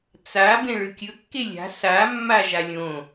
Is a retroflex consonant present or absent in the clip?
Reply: present